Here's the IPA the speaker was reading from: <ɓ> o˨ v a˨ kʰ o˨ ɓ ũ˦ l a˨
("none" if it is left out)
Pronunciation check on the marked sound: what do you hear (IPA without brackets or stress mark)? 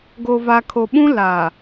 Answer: ɡ